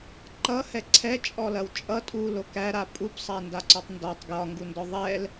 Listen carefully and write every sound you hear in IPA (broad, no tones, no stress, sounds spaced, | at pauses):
ǃ ʌ h ɛ ǀʰ ɛ t͡ʃʼ ɔ l ɐ w t͡ʃʼ ʌ tʼ u l o k æ ɾ a pʼ u p sˤ æ n d a ǀ ɔ tˤ n d ɒ tˤ ɡ j ɒ ŋ ɡ u n d ɔ ðˤ ɛ l